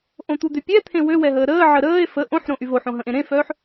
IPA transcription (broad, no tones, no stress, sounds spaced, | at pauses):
ʔ õ t̪ u d̪ ø pʲ ɛ t̪ʰ ẽ w ø w ɛ ɦ əː ɾ əː ʕ ə ɾ əː e̯ f ə ʔ õ ħ ɾ õ ʔ y v o ħ õ ɦ ə̃ ʔ ẽ ɾ ẽ f œː ħ